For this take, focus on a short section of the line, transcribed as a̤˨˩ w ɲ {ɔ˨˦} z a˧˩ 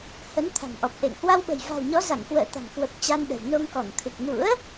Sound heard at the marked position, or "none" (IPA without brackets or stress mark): ɔ˨˦